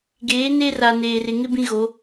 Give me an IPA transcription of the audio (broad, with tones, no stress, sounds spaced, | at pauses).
ɡ eː˨˦ n e˦ r a˨ n eː˨ r ɪ˨ ŋ ɪ˦ b ĩ˦ ɣ o˨˦